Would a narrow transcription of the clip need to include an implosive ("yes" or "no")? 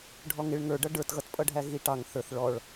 no